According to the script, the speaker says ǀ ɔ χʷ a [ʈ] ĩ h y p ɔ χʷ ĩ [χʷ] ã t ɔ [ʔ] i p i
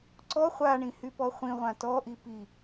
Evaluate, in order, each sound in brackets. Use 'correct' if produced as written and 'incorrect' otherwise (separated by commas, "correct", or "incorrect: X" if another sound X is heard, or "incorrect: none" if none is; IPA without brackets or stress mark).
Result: incorrect: ɳ, incorrect: ʁʷ, correct